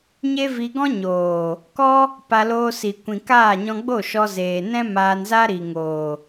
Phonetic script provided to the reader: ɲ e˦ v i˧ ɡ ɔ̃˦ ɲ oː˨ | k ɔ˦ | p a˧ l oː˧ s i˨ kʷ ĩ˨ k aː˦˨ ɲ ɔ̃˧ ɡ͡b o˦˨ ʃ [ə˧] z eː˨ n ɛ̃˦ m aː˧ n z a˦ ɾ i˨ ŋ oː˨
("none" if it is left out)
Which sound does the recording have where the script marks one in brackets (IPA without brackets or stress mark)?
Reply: ɔ˧